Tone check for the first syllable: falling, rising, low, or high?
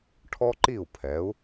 high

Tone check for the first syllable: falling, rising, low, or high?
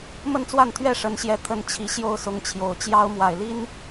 falling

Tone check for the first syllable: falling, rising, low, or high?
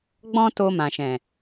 high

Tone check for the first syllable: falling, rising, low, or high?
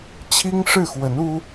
high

